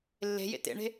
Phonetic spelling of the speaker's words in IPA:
lː e̤ j ḛ t ḛ ɳ e̤

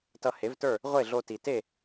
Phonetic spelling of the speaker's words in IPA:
t ʌ˧ h e˩˥ v t ə˞˥˩ | ʁʷ e˥˩ ɮ o˧ t i˩ t e˥˩

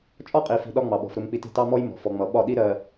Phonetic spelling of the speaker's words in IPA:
t͡ʃʼ ɒ˦ qʼ i˨ f i̤˨ ɗ ɒ˦ ŋ͡m ɑ˨ ɓ ɔ̤˨ f ɾ ʊ˦ m k͡p i˦ t i̤˦˨ t ɑ˦ m ɔ˦ j m ɔ̤˨ f ɔ˨ ŋ͡m ʌ˨ ɓ ɒ˦˨ ɗ i˦ ɾ ɜ˨

